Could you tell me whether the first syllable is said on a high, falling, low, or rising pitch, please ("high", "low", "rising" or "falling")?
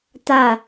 falling